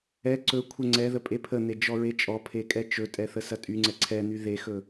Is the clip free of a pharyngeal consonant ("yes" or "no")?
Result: yes